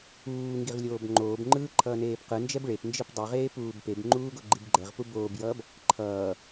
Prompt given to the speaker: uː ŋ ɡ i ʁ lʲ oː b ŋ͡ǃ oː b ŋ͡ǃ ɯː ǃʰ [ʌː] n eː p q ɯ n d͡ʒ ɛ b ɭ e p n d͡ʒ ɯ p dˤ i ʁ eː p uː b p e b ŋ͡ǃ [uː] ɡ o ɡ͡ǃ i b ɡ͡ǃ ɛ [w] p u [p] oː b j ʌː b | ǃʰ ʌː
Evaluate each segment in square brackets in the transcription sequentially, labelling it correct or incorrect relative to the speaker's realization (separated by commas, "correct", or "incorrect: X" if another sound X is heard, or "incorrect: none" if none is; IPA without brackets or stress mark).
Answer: correct, correct, incorrect: ʁ, incorrect: b